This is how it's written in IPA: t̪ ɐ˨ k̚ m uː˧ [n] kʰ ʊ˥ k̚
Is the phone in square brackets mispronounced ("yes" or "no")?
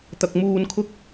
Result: no